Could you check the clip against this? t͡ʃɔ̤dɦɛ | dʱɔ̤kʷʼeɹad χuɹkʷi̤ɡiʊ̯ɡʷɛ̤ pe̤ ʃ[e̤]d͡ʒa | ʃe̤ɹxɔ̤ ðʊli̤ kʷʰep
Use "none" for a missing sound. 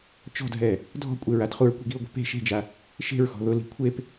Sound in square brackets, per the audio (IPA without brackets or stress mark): e̤